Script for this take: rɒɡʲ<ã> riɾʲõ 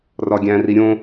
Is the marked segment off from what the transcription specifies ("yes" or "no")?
yes